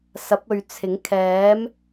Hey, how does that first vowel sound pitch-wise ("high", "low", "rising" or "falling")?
rising